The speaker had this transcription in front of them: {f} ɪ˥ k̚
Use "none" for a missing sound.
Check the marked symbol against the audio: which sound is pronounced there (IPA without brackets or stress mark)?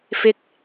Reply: f